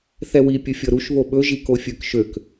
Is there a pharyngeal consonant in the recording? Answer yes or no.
no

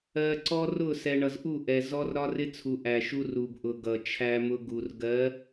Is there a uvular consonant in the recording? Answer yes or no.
no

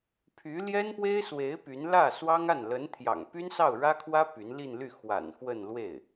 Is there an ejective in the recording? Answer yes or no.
no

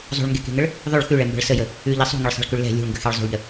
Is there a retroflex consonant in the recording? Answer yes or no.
yes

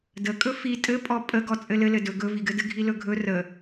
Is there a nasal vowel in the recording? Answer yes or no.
no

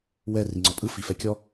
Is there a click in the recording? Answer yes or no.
yes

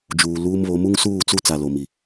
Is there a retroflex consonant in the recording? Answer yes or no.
no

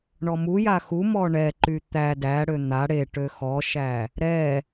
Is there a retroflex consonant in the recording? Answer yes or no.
yes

